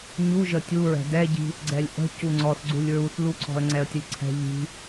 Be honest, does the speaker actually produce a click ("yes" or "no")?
yes